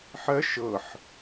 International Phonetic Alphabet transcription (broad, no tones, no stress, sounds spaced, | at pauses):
ħ ɜ ʃ ɤ ħ